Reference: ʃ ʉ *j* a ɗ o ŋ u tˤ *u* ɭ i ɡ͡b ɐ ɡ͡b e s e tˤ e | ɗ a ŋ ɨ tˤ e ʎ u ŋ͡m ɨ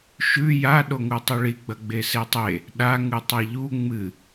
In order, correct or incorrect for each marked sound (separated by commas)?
correct, correct